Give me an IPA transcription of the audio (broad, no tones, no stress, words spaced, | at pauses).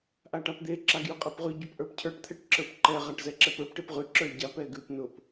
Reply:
ʔaʈapd̪e ǁaɡjʉqʼepʁʉ ɟʊpʔə˞pcʰə˞ʈ t̪ʰɛʈǁə˞pǃɛ ʁaʈzɛǁɛpə˞p ʈepʁʉ ǁə˞ɟap ɛɡʉp nʊp